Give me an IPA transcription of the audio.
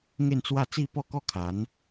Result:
ŋ e˥˧ n t͡s w a˥˧ t͡s i˥˧ p ɔ˥˧ k ɔ˥˧ kʰ a˨˦ n

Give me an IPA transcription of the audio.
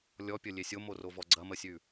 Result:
lʲ ɔ pʲ ə lʲ e sʲ o m o r o v ɔ ɡ͡ǀ ɐ m ə sʲ ʉ

